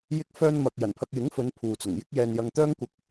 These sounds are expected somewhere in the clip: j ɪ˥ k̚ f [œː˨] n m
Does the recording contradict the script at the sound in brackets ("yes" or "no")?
yes